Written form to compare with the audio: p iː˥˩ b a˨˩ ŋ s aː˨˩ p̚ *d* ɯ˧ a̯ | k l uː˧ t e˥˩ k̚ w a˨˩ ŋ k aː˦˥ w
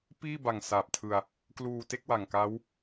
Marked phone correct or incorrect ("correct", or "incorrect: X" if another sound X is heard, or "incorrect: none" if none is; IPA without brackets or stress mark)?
incorrect: tʰ